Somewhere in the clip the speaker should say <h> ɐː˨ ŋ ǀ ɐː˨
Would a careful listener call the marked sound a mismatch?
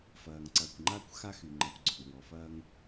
yes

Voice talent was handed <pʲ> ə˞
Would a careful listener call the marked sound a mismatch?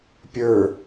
no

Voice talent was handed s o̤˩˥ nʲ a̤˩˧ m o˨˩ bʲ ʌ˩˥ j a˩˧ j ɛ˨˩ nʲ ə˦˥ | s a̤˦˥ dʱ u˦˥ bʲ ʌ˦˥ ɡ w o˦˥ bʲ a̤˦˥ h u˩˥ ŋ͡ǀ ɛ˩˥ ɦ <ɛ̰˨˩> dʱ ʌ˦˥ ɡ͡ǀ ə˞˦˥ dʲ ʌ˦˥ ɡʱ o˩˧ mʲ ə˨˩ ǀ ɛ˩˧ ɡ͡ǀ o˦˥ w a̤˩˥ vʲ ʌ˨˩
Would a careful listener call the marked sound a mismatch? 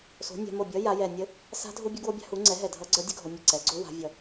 yes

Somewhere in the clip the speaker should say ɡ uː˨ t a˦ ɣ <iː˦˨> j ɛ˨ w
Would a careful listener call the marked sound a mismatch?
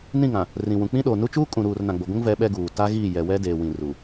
no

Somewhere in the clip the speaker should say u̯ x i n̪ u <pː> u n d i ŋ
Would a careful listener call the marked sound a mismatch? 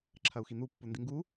no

